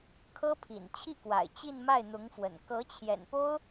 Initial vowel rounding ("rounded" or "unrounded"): unrounded